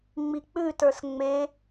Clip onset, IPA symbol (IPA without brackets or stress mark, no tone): ŋ͡m